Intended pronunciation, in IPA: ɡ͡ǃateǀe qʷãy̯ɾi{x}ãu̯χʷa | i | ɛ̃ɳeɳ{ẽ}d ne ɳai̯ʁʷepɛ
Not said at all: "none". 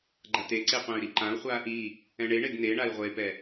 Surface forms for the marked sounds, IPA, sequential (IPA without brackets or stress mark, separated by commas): ǃ, e